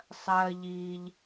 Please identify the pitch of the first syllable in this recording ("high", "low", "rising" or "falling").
high